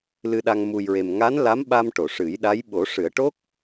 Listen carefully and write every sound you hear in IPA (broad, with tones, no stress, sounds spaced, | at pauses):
l ɨ˧ ɗ a˧ ŋ m u˨˩ j ɹ e˨˩ m ŋ a˧˥ n l a˧˥ m ɓ a˧ m ʈ o˨˩˨ ʂ ɨ˨˩˦ j ɗ a˧˥ j ɓ o˨˩˦ ʂ ɨ˨˩˦ ə̯ ʈ o˦˥ k̚